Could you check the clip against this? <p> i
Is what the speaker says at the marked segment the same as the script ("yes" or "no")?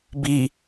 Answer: no